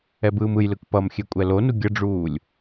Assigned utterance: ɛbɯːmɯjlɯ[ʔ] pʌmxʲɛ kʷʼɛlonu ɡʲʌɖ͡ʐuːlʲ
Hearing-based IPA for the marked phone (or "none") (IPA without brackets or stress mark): k